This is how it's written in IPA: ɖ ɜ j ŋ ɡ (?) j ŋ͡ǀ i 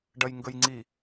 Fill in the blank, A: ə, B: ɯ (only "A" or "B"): A